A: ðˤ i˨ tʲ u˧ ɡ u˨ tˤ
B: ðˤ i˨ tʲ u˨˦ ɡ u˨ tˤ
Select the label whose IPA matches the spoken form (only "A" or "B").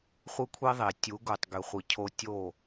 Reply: B